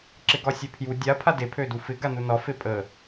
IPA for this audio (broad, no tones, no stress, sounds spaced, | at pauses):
ǁ ɪ ɡ ɒ sʲ ø pʰ j u dʲ a pʰ a d e pʰ ø d u f ɪ ɡ a n u n ɒ f e pʼ ə